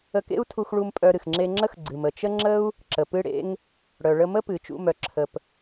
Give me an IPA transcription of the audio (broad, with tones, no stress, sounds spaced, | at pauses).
ə˧ k ḛ˥ u̯ tʰ u˧ x ɭ u˧ m pʼ œ˧ ɾ ɨ˩ x ŋ͡ǁ e˧ ŋ͡ǁ ə˥ x ɡ͡ǀ ɨ˩ m ə˩ t͡ʃ ə˥ ŋ͡ǁ ə˥ u̯ | ǁ ə˩ p ɨ˧ ɽ ḛ˧ ŋ | ɽ œ˩ ɭ ə˧ m ə˥ p ɨ˩ t͡ʃ ṵ˧ m œ˩ ǁʰ ə˩ p